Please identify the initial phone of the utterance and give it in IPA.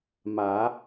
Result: m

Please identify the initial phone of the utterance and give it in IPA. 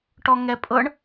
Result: ʈ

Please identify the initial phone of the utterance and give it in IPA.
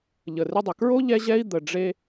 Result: ʎ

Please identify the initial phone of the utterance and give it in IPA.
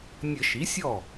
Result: nʲ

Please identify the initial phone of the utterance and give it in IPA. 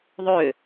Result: ðˤ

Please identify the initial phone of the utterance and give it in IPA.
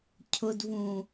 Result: cʰ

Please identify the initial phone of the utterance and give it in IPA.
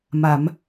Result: m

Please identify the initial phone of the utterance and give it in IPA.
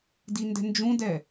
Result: d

